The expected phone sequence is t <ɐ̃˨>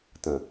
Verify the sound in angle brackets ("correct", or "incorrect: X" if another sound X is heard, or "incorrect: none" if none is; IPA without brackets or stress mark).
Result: correct